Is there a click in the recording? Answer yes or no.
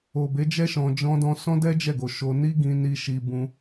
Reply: no